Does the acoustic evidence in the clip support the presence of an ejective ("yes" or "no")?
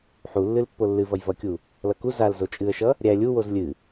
yes